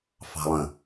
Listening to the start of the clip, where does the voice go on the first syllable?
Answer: low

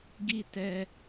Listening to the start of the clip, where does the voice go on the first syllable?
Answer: high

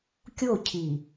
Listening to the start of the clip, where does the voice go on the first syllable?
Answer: falling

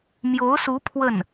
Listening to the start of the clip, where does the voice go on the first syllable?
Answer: rising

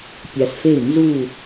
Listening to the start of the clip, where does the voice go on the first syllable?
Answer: low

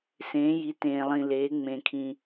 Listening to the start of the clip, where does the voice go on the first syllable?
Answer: rising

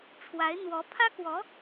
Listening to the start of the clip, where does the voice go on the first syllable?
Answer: rising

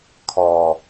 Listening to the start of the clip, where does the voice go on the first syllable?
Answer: low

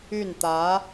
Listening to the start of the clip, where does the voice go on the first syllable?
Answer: falling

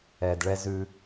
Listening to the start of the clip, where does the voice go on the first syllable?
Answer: low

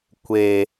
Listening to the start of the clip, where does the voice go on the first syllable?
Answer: low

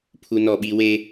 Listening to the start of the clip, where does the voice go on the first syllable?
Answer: high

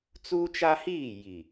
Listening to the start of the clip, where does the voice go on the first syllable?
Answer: high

